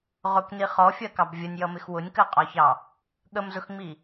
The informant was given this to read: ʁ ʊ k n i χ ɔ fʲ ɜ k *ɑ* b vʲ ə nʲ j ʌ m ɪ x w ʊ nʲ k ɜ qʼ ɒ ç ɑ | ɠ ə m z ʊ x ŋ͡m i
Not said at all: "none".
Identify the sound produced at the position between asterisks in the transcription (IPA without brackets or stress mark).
ɑ